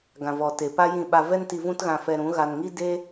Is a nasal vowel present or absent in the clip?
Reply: present